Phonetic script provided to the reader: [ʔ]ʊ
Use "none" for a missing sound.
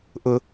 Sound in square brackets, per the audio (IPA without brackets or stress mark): ʔ